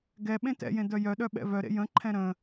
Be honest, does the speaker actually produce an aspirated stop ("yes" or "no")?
yes